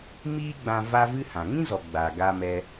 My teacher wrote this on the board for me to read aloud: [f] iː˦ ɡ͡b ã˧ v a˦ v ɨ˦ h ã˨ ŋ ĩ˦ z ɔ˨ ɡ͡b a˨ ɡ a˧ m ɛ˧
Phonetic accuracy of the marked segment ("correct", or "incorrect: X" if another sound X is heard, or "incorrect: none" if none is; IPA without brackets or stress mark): incorrect: m